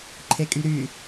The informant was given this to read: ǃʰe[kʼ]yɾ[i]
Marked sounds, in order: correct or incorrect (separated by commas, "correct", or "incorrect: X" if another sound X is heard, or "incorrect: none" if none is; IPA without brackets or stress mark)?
correct, incorrect: y